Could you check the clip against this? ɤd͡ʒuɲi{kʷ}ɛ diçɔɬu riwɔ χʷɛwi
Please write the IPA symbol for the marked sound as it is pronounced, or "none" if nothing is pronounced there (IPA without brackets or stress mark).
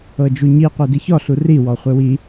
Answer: qʷ